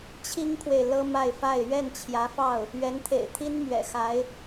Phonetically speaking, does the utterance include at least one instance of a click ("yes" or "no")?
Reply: no